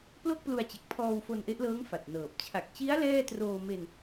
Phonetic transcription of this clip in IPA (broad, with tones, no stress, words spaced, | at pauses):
plo˥˩k̚plu˧a̯t͡ɕe˨˩k̚pʰɔː˧w fo˧nʔe˦˥ʔlɤː˦˥ŋ fa˨˩t̚nɤː˨˩p̚ t͡ɕʰa˨˩k̚t͡ɕi˦˥a̯ lɛː˥˩troː˧me˧n